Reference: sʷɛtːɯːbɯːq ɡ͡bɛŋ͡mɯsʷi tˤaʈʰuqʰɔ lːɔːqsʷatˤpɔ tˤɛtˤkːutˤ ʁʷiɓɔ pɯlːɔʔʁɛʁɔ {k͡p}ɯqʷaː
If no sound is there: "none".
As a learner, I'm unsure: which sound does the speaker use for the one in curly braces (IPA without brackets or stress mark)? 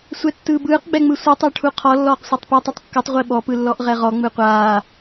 ŋ͡m